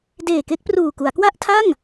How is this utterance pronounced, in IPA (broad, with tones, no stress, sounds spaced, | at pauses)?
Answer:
d eː˨˩ k e˦˥ k̚ p r uː˨˩ k u˩˦ a̯ k w a˥˩ ʔ tʰ a˥˩ ŋ